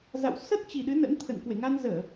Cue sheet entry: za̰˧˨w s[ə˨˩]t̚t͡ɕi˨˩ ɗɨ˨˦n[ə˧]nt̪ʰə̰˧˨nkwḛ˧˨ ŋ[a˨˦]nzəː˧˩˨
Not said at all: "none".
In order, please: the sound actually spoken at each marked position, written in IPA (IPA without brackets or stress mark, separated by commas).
ə˦˥, ə̰˧˥, a˧